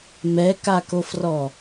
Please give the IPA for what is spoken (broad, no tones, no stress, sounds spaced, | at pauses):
m ɛ k a k o f r ɔ